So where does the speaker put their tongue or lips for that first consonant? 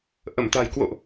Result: throat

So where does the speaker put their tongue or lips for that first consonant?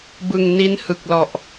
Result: lips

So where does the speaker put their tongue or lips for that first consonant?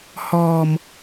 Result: throat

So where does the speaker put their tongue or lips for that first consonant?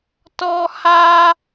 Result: tongue tip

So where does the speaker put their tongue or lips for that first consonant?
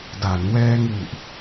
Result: tongue tip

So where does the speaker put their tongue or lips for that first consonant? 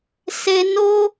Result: tongue tip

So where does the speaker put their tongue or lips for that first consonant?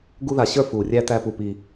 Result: velum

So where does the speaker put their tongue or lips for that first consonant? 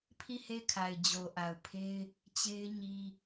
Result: lips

